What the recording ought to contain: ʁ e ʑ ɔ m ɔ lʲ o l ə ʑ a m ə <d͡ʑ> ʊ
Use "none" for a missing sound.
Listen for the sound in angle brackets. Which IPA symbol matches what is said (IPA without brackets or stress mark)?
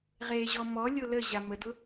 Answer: d